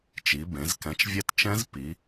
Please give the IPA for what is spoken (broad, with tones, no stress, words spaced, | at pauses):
t͡ʃi˩˧bẽ˩˧z kɛ̃˨˥t͡ʃvʲɛ˦˥tt͡ʃɛ̃˦˥z pi˩˧